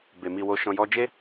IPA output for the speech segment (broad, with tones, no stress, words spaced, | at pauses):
be˨mi˧wo˧ ʃɔ̃˨jɔ˧d͡ʒe˦